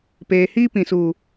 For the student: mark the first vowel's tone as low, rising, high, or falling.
low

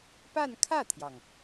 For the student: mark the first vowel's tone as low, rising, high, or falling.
falling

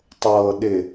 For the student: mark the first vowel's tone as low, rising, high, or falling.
low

